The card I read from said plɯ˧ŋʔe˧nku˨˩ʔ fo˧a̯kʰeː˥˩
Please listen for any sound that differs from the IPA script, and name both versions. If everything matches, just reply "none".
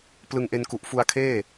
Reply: o˧ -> u˧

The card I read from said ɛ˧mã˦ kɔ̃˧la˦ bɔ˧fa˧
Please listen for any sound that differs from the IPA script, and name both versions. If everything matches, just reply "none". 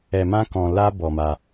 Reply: f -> m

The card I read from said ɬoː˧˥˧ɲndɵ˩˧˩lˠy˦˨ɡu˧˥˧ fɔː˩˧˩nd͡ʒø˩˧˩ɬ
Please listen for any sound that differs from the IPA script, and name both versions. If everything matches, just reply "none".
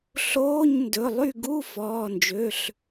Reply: none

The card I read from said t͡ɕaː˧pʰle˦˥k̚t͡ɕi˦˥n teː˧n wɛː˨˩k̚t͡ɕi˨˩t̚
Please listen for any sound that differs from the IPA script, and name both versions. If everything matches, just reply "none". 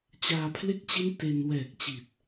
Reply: eː˧ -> e˧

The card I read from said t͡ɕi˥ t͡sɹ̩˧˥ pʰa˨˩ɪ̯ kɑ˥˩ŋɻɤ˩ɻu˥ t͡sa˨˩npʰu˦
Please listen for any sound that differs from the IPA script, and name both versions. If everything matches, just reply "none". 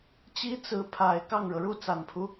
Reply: none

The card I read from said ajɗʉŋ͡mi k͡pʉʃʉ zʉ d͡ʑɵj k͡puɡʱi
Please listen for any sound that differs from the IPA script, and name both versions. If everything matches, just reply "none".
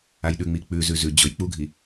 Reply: ʃ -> z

